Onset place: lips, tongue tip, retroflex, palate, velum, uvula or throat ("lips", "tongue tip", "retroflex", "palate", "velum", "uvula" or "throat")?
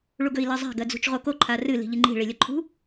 retroflex